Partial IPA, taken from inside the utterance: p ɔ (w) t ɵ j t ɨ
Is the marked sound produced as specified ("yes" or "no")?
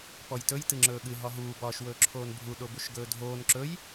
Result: no